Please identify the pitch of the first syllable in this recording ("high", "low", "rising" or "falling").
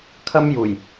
high